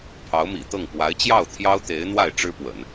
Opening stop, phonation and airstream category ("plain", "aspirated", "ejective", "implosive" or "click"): aspirated